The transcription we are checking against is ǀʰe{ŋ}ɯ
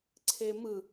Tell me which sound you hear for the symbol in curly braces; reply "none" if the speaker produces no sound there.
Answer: m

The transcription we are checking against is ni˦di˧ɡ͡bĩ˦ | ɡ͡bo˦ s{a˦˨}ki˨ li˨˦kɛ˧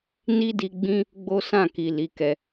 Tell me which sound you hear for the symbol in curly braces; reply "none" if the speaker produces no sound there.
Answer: ã˦˨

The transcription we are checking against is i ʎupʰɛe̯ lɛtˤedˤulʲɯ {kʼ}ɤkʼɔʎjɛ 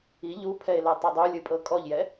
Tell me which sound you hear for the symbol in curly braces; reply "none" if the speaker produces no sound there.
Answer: pʼ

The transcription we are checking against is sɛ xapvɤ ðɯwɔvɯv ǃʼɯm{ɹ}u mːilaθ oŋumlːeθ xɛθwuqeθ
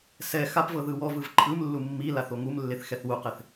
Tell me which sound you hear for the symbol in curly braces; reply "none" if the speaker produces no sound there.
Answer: lː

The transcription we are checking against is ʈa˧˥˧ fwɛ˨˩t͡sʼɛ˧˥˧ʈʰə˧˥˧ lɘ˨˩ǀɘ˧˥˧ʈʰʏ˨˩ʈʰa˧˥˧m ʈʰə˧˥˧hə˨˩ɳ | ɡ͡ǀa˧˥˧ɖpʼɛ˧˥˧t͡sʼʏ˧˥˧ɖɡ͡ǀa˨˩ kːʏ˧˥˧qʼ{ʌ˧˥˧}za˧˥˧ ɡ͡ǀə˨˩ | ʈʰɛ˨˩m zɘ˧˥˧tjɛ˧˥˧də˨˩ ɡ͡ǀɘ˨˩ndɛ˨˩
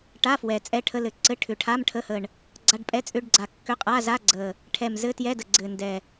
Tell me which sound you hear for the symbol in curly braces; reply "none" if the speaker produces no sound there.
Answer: a˧˥˧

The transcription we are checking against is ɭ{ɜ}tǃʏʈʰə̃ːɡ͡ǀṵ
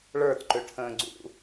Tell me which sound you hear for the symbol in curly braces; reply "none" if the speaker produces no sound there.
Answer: ə˞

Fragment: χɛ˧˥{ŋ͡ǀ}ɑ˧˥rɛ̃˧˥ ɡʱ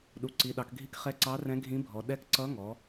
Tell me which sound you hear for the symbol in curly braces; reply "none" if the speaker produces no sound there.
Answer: ǀ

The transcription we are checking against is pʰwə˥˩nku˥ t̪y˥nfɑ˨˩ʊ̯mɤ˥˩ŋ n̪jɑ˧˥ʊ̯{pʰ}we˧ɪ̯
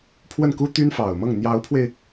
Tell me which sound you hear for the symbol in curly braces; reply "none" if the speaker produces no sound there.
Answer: pʰ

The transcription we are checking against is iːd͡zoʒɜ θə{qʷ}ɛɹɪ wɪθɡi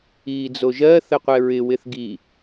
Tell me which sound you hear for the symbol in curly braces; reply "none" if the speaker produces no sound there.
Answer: qʷ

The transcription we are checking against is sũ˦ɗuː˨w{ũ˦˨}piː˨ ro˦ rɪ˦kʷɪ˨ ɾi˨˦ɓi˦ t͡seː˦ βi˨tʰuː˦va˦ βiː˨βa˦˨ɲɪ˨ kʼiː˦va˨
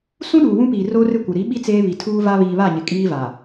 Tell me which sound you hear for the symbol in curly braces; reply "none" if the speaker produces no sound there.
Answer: ũ˦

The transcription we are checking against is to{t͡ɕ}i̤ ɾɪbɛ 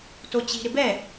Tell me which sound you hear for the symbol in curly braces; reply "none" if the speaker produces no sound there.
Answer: t͡ɕ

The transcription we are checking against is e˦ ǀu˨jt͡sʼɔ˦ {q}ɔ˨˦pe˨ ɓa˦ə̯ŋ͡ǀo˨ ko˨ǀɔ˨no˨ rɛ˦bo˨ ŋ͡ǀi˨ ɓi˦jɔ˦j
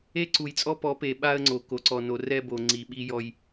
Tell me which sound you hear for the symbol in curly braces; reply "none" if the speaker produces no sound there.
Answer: p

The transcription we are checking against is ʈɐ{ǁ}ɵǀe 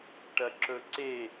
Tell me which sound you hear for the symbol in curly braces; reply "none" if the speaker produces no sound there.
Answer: ǁ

